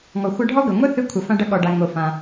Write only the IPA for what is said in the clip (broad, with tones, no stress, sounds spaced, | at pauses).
ŋ ɔ˩ xʷ ɐ˧ ɖʱ ɔ˥ ɡ ɐ˩ ŋʷ ɛ˥ θ ɨ˧ kʷʰ ɐ˩ f ã˧ ɖ ɐ˧ ɠ ɔ˩ ɖ a˩ ŋ o˩ f ã˩